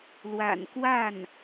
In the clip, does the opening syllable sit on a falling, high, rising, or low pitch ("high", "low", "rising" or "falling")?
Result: low